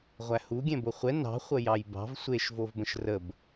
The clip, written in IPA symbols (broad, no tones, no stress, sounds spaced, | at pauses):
ʁʷ æ h u ɡʲ ɛ̃ b o χʷ ɛ n ɑ̤ χʷ ə j ɑ j b ɑ̤ v sʷ e ʃ v o v b ə̃ ʃ r ə b